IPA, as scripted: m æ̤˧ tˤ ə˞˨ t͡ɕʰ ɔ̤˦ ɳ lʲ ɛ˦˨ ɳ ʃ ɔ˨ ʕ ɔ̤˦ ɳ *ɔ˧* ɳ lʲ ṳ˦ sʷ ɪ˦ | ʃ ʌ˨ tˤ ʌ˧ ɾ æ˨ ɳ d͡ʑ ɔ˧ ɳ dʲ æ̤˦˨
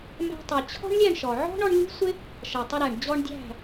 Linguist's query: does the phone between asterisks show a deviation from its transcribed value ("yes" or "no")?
no